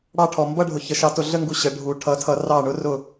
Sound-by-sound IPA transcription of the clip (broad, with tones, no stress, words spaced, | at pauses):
ɽɑ˧˩ʈʰɔ˩mbʌ˥˨ ɖʱʊ˩çə˩˧ ʃɑ˩˥tʊ˩˧ ɮə˥˨ŋɡu˧˩ ɕə˩˧ ɖʱu˩˧ ʈʰʌ˩˥tʰʌ˩˧ rɑ˧˩ɳʊ˦rʊ˧˩